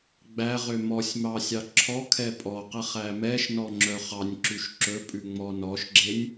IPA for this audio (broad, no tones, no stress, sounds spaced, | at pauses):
ɡ͡b æ ʁ ø m ɔ sʲ m ɑ sʲ ɑ ǁʰ ɔ kʰ ɛ pʼ ɔ q ɛ χ æ m ɛ ʃ n ɔ ŋ͡ǁ œ χ ɑ nʲ ǁ ʉ ʃ ǁ ɵ pʼ ʉ ŋ͡m ɔ n ɔ ʃ ɡ͡ǁ e nʲ